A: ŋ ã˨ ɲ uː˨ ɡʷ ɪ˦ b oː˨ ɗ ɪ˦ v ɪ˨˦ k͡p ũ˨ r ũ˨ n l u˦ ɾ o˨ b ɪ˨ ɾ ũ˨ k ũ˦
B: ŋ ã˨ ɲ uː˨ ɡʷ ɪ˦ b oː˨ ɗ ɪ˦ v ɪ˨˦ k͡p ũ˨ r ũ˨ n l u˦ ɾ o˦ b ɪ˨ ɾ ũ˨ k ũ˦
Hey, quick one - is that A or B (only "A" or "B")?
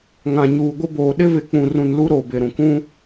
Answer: A